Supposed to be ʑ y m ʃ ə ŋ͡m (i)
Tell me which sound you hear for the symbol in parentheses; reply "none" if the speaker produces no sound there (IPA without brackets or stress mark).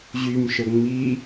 i